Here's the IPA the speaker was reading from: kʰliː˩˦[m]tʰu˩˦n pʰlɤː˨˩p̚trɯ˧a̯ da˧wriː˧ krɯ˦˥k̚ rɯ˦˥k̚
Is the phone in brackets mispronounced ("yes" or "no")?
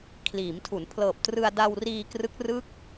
no